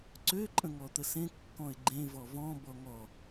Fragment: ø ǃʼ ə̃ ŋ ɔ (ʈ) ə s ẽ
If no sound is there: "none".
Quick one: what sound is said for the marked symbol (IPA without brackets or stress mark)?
t̪